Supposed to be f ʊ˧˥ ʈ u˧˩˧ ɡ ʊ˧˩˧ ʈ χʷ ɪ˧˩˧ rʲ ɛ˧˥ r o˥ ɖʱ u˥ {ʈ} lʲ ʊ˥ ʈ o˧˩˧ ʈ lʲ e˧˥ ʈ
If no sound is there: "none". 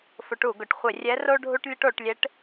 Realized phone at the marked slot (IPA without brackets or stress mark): ʈ